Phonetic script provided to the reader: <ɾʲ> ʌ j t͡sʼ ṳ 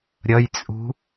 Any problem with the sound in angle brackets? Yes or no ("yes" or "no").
no